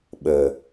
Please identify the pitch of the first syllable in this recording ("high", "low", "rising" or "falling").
low